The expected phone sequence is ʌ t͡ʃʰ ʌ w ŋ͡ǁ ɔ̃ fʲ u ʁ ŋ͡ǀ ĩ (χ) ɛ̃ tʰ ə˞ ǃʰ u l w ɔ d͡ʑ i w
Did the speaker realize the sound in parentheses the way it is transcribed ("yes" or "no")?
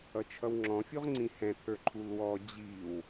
no